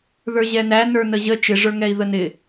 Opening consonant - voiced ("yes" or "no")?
yes